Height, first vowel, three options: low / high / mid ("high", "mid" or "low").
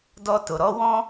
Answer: mid